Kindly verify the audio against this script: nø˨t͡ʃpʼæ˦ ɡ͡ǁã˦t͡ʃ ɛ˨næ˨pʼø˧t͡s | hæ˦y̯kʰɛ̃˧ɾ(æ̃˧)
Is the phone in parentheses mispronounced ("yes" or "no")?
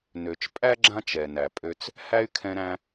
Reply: no